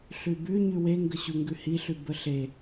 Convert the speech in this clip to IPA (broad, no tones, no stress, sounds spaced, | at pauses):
ɬ ʉ b ʉ ɲ ʉ w e ŋ ɡ ə ɕ u ŋ ɡ ʉ h i ɬ ʉ b ə ɬ e